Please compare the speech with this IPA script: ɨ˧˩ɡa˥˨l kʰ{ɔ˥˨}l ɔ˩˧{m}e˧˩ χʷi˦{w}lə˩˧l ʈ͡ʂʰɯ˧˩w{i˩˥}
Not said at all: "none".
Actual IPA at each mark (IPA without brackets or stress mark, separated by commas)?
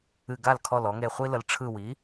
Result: ɔ˧˩, ŋ, none, i˩˥